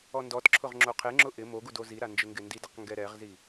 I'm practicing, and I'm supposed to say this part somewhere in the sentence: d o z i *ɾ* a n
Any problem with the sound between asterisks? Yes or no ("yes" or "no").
no